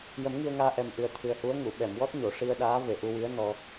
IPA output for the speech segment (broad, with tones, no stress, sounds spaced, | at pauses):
j ə˨˩˦ m ŋ i˧ ə̯ ŋ aː˧ ʔ ɛ˨˩ m ʔ ɨ˨˩ ə̯ t̪ʰ ɨ˨˩ ə̯ h u˧˥ ə̯ ŋ u˨˩˨ ɓ ɛ˨˩˨ m w ɔ˦˥ t̚ ɲ o˨˩˨ ʂ i˧ ə̯ ɗ aː˧˥ v e˨˩ ʔ u˧ w i˧˥ ə̯ n ɔ˧